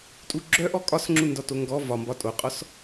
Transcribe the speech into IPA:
tʼuɡ͡ǁœʔɔ kʼɒsŋ͡ǁundɒto ŋɡɔ vɒ mbɒtʼoqʼɔs

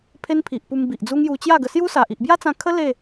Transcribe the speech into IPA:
pʰe˦npʰi˨ʔpu˧m bi˨ʔd͡zu˦ŋju˧ t͡ɕja˥˧ɡə˧ sju˦sa˨ʔ i˨ʔbja˦t͡sã˧ kʰə˦ le˥˧

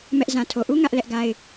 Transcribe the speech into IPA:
mɛ˦ʔ zã˨tʰo˨ʔu˦ ŋä˦ʔlɛ˦ʔɡa˦ɪ̯

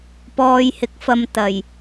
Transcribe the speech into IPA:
pɔː˨jhɪ˨k̚ fɐ˧mt̪ɐ˨˩j

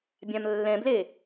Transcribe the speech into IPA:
bʲãmlːɛ̃ble

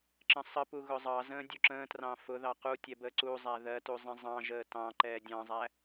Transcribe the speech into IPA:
ǁə̃sˤəpu ɣʊzˤɑzə̃ː dʲuǁə̃ːtrɑ̃ fʊðɑ qu tʲɛbəːǀuzˤæ ðɜtu zˤɛ̃zˤɑ̃ʒəː tɑ̃ ǃɛːdʲɑ̃zˤæ

